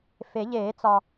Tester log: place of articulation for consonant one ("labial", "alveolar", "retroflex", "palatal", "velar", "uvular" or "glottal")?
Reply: labial